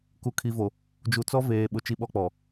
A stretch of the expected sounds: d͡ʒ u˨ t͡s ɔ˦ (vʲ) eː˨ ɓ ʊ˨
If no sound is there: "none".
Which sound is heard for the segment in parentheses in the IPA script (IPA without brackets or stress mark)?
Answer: v